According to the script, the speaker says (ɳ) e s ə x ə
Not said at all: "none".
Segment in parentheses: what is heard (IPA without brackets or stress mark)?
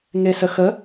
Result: ŋ